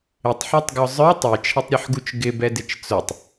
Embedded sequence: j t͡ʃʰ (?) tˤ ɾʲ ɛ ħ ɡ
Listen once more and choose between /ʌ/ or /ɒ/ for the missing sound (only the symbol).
ʌ